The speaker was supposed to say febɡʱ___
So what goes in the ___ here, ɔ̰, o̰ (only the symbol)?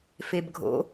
o̰